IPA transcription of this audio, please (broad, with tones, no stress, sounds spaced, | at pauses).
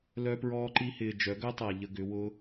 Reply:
l œ˧ p ɹ ɔː˧ ǃ i˧ h ɪː˨ d͡ʒ œ˨˦ ɡ œ˦ tˤ a˨ ʎ ə˧ ɡ ʏ˨˦ w ʊ˦